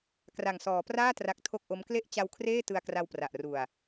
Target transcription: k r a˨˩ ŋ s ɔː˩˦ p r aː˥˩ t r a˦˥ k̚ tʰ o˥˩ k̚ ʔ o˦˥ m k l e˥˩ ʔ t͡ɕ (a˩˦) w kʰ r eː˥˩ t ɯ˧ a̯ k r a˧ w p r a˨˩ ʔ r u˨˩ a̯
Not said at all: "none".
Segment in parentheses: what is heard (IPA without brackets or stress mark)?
a˧